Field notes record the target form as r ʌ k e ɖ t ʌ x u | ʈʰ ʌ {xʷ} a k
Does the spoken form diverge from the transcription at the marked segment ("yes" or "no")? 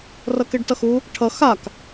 yes